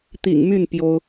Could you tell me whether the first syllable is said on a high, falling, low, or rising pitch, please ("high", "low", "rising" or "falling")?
low